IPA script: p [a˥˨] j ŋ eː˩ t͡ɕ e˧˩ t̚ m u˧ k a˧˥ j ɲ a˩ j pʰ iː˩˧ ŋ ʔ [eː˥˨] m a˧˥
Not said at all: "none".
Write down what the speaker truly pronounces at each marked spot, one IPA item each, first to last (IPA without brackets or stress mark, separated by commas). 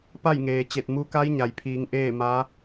a˥˨, eː˥˨